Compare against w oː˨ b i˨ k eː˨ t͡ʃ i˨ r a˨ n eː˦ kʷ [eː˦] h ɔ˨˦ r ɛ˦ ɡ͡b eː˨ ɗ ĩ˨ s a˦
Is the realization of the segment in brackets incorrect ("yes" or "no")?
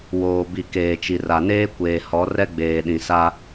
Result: yes